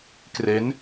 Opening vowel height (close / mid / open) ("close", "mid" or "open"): mid